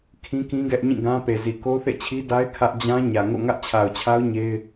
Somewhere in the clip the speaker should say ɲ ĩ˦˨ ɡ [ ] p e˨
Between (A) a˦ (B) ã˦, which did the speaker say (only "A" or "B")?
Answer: B